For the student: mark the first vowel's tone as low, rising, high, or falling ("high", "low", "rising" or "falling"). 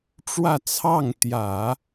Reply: falling